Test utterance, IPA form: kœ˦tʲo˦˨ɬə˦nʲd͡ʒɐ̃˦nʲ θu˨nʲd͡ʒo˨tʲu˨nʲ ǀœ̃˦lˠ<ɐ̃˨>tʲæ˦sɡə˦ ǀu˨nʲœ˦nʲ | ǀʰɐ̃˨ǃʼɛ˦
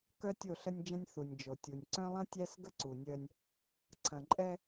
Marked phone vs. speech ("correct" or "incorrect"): incorrect